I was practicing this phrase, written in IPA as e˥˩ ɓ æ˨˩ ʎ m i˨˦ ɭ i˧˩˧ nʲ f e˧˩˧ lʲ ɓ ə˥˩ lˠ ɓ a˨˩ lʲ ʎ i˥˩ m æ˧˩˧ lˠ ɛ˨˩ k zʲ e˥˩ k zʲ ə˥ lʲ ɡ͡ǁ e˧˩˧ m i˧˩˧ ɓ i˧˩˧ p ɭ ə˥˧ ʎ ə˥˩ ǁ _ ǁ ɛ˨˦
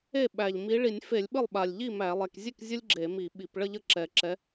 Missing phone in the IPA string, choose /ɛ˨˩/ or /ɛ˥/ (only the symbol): ɛ˨˩